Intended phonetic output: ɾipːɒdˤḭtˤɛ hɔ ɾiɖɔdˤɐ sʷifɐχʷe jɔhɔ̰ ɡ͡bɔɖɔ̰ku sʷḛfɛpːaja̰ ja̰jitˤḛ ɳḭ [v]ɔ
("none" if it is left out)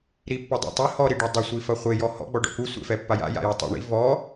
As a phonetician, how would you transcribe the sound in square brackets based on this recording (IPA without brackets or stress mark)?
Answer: v